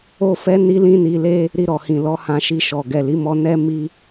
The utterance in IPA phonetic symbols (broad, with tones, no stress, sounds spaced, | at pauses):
o˦ f ɛ˦ n i˦ l ĩ˦ n i˧ l e˦ | ɾ i˧ ɾ ɔ˨ h ĩ˨ l ɔ˨˦ h ã˧ ʃ i˧ ʃ ɔ˨ ɡ ɛ˨ l i˨˦ m ɔ˧ n ɛ˦ m i˦